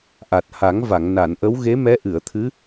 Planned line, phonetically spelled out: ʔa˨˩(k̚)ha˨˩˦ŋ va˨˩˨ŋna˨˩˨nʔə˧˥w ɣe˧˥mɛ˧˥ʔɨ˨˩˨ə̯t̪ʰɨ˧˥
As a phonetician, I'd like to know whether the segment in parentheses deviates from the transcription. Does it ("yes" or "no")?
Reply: yes